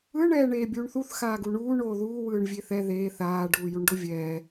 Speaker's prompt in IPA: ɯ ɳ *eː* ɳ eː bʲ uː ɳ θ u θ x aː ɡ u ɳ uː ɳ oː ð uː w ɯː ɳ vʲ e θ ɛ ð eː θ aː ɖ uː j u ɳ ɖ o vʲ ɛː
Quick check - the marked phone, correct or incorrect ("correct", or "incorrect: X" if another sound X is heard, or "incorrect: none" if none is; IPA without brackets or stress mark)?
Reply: incorrect: ɛː